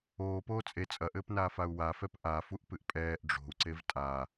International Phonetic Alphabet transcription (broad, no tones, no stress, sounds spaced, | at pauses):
oː p oː t͡sʼ e t͡sʼ ɐ ʔ ɘː p n aː f a u̯ w a f ɛ p ʔ a f u ʔ p ɨ ʔ pʼ ɛː ʔ ɖ͡ʐ o̤ u̯ ǀ e v tʼ a